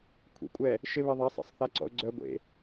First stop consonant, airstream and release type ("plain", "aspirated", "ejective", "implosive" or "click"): aspirated